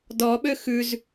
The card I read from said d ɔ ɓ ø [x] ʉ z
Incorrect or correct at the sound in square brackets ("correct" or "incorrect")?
correct